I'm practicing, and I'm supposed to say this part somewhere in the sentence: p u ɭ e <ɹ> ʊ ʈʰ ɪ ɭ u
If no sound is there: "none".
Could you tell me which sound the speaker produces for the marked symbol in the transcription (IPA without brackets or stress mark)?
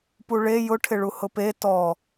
j